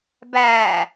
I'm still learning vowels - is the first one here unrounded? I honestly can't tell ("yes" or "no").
yes